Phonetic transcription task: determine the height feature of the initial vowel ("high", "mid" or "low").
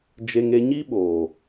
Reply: mid